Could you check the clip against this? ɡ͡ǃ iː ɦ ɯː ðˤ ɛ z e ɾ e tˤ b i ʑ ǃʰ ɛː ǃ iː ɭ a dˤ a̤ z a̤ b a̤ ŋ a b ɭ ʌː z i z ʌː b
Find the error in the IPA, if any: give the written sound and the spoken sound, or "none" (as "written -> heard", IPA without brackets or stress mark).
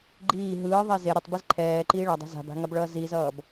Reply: ʑ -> z